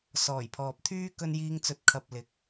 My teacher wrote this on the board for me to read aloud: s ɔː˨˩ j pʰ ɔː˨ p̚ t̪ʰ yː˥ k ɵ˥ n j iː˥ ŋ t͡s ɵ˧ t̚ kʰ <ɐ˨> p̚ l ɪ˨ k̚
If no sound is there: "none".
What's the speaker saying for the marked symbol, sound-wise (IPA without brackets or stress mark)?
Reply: ɐ˨